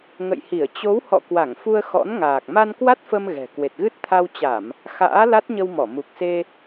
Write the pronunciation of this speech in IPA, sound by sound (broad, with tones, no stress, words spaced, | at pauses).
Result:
ŋə̰˧˨jhi˧˩ə̯ t͡ɕo˨˦whɔ̰˧˨ kwa˧˩ŋfu˧ə̯ xɔ̰˧˥nŋaː˨˩k̚ ma˧nkwa˦˥t̚fə˧m ɣɛ̤˨˩ kwe˨˩t̚ɣɨ˦˥t̚ t̪ʰa˧wt͡ɕa˧˩˨m | xa̰ː˧˥ la˦˥t̚ɲə˧w mɔ˧˩mu˨˩k̚se˧